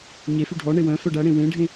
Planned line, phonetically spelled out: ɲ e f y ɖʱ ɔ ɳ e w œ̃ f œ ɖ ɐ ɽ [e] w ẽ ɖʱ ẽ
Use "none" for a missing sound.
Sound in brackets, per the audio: ẽ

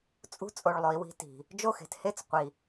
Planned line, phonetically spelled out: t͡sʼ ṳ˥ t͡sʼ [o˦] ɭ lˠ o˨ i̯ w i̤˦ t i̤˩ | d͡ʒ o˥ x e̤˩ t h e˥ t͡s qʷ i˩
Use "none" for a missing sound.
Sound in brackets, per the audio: o˨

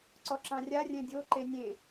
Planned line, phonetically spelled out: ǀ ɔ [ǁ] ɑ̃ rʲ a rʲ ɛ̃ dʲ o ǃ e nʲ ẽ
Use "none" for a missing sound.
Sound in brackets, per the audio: ǁ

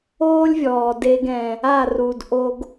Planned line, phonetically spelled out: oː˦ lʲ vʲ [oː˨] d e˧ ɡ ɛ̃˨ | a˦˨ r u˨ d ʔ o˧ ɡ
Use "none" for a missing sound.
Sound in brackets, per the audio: ɔː˨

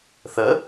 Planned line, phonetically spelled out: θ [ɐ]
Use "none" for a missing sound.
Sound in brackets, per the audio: ə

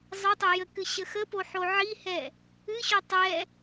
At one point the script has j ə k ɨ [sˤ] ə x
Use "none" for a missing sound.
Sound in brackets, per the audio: ɕ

